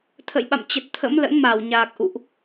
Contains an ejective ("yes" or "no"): no